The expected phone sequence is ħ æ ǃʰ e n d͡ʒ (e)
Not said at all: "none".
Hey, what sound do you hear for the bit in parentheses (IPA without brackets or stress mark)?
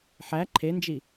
i